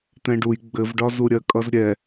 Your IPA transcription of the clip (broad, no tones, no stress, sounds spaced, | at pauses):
t̪ ɛ̃ ɖ u j ɡ͡b ɘ v ɖ ɒ z u ɾʲ ɜ kʼ ʌ z ɾʲ ɛ